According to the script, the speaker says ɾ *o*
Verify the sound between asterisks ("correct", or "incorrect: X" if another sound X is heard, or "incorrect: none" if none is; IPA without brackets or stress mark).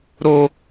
correct